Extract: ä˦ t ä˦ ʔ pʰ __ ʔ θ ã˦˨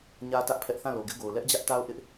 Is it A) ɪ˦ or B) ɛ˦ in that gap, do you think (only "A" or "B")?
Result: B